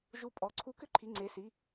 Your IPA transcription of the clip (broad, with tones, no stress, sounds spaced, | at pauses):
ʒ u˧˩ pʼ ɔ˩˧˩ ǀʰ u˦ k ʏ˦ ǃʰ i˩˧˩ ŋ͡ǀ e˩˧˩ s i˩˧˩